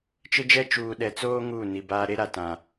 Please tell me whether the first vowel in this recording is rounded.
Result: no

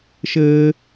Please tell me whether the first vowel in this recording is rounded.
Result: no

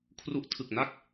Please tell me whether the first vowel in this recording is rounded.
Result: yes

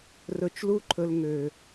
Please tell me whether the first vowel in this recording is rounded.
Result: yes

